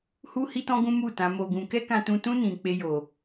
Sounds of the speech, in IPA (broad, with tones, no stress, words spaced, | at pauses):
hu˦hi˦tɔ̃˦ɡũ˦ mu˦˨ tã˨˦ mo˧ɡũ˧ kɛ˦kã˧tũ˧tũ˦ nĩ˧k͡pe˦ jo˧